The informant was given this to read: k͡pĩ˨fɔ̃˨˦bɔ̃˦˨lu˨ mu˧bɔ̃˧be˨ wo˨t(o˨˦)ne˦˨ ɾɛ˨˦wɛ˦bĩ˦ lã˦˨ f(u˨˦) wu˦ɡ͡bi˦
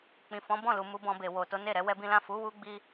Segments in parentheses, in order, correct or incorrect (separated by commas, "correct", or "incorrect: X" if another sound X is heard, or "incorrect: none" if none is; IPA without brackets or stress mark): correct, correct